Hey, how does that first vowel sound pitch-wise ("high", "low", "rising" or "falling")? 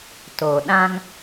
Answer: low